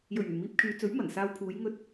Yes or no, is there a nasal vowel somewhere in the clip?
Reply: no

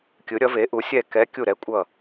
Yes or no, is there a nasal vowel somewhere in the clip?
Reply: no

